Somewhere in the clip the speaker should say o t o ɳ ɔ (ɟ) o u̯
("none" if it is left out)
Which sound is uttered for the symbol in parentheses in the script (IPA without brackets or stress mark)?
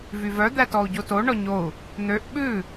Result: ɲ